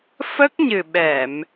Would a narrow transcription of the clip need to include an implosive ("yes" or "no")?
yes